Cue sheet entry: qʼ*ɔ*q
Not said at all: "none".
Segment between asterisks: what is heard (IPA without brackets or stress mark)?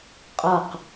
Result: ɔ